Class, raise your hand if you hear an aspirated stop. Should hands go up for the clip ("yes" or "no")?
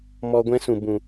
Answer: no